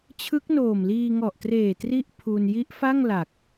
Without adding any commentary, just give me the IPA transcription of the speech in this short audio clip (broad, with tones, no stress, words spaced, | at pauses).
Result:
t͡ɕʰɯ˦˥k̚noː˨˩mliː˧ŋɔ˨˩ʔ treː˨˩tri˦˥ʔ pʰu˧n ji˦˥ʔfa˥˩ŋ la˨˩k̚